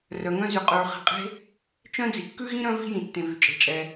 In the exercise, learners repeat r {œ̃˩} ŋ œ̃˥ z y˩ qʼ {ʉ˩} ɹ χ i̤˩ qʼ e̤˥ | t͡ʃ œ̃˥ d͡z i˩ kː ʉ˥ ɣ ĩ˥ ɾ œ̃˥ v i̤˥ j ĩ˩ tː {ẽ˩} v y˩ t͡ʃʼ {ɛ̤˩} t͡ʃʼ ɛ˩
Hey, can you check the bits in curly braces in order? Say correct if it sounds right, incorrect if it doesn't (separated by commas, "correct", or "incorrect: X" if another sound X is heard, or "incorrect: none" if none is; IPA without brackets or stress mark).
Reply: incorrect: œ˩, correct, correct, incorrect: e̤˩